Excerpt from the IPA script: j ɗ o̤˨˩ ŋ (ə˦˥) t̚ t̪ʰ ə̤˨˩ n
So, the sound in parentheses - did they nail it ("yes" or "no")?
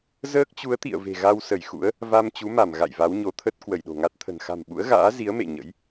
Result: no